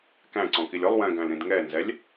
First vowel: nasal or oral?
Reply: nasal